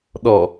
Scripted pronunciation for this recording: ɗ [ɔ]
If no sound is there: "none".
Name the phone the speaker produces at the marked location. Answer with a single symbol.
ɔ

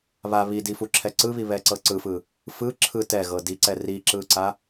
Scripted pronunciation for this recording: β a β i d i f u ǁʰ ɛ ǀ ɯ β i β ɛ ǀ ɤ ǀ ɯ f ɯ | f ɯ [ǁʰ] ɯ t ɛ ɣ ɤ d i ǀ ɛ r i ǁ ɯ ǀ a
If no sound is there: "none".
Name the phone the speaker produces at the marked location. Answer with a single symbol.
ǁʰ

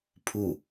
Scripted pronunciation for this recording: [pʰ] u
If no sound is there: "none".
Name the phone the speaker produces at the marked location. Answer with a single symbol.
pʰ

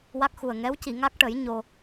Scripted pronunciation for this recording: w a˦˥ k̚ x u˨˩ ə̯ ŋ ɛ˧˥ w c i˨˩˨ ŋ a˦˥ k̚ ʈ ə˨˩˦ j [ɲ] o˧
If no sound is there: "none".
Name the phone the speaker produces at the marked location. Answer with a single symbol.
ɲ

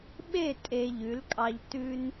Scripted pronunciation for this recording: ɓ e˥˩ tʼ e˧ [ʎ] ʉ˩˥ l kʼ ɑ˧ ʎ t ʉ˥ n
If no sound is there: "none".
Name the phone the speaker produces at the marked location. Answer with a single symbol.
ʎ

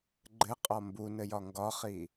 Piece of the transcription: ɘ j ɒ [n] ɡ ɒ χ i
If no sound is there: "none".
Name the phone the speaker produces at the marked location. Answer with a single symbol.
ŋ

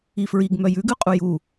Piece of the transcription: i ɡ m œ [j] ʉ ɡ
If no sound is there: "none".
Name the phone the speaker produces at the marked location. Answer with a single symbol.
j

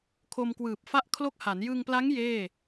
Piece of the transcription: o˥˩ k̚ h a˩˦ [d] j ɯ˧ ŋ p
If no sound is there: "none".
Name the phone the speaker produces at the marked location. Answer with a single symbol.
n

